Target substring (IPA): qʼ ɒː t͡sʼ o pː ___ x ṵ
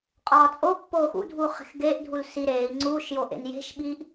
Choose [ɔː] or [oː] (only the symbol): oː